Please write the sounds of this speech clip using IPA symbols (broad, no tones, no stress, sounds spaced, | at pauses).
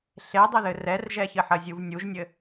ɬ e dˤ ɘ ð ɘ r ɛ r ʒ ɛ ç ɘ ħ ɐ zʲ u v nʲ u ʒ nʲ ɘ